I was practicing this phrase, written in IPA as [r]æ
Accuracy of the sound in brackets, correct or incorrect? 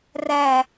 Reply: correct